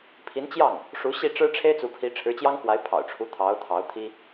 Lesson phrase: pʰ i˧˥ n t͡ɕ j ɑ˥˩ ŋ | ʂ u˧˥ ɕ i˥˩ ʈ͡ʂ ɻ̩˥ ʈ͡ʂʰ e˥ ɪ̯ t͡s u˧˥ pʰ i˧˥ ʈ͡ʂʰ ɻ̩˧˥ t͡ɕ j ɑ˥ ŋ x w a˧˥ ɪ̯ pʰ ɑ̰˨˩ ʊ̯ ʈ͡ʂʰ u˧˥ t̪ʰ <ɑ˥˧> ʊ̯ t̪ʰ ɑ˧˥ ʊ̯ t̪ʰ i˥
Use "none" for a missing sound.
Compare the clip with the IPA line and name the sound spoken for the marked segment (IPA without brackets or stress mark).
ɑ˧˥